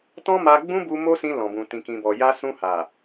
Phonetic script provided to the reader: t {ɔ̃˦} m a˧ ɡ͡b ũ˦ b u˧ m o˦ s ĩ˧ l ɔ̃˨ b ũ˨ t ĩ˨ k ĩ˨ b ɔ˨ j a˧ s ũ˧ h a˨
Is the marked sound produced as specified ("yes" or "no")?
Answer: yes